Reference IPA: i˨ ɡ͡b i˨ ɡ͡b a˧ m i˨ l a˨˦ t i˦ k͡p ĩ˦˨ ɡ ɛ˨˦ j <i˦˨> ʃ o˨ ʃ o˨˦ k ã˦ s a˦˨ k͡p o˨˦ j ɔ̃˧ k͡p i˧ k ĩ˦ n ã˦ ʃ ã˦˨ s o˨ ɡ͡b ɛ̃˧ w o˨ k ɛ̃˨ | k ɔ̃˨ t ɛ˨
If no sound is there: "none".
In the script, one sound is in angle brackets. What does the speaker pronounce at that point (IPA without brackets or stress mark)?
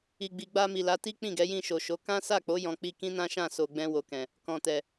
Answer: ĩ˦˨